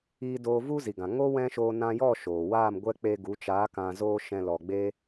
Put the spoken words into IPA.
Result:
i˧ d oː˧ v u˦ z i˨ ɡ ã˨ ŋ o˦ w ɛ̃˦ ʃ oː˧ n ã˧ j ɔ˦˨ ʃ oː˨ w aː˦˨ m ɡʷ ɛ˦ k͡p e˧ ɡ u˨˦ t͡ʃ aː˨˦ k ã˧ z oː˦ ʃ ɛ̃˧ l ɔ˨ ɡ͡b e˧

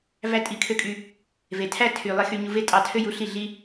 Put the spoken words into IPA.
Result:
v æ˦ tʼ i˦˨ kʰ ø˦ kʼ y˧ | v e˨ tʰ æ˦ tʰ y˨ lˠ e˦ x y˧ ɲ u˧ v e˦ tʼ ɑ˧ tʰ ø˦ j u˨˦ ɬ i˦˨ ɮ i˦

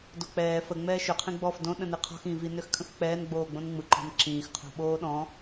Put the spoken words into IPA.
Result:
d o k͡p ɛː f ə ŋ͡m ɛː ʃ ø qʰ ĩ ɡ͡b ɔ f d õ ɗ ə̃ n i qʰ ɔ̤ x ĩ v i n ø x kʰ ə̃ x k͡p ɛː n ɡ͡b oː ɡ͡b õ n ŋ͡m ɯ ǃ ɔ̤ n ǁ ĩː x qʰ o̤ ɓ oː ɗ ɔ̃

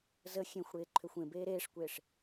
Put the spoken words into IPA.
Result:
z ə xʲ ẽ xʷ ɽ eː ǃʰ ø xʷ ẽ b eː ɾ eː ʂ kʷ eː ʂ

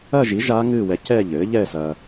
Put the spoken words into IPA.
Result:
ɐ˥˧ ʒ i˩˥ ʒ aː˦˥ ŋ ɨː˥˧ w ɛ˧ c ɛ˥˧ ʎ ɘː˩˥ ʎ ɛ˥˧ s ɐ˧

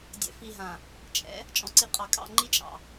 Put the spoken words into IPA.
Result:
dʲ ɛ̰˨ f i˨ ɦ ã˨ | t͡ʃʼ ɛ̰˨˦ | t͡ʃʼ ɔ̃˨ ǀ i˨ qʼ ɑ˨ kʼ ɑ̰˦˨ ŋ͡ǃ i˦ t͡ʃʼ ɑ̰˨

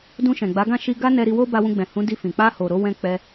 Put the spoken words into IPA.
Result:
d ũ˧ ʃ ɛ̃˨ ɡ͡b a˨˦ ɡ ã˦˨ ʃ i˧ ɡ a˦ n ɛ˧ ɾ i˧ w o˦ b a˧ w ũ˧ ɡ͡b ɛ̃˨ h ũ˨˦ d i˧ f ĩ˨ k͡p a˧ h o˨ ɾ o˧ w ɛ̃˧ k͡p ɛ˧

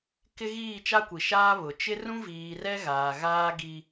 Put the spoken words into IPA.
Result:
k ɪ˦ ɣ iː˦˨ t͡ʃ a˦ kʷ i˨ ʃ aː˦ β ʊ˨ t͡ʃ ɪ˦ r ũ˦ v iː˨ r ɛ˦ ɣ aː˨ ɣ aː˦ ɡ i˦

